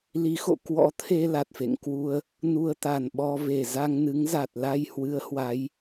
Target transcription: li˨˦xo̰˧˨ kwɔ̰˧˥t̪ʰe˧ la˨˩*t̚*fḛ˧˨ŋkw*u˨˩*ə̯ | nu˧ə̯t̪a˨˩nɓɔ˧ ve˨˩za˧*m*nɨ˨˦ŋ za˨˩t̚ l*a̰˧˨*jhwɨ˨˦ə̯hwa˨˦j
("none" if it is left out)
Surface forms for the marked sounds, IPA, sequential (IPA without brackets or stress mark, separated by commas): t̚, u˧, ŋ, a˧